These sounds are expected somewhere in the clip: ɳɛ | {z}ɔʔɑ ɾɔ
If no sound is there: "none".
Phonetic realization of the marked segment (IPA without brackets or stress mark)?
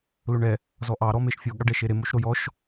z